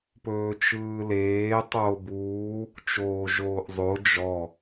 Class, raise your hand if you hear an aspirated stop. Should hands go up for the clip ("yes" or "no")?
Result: no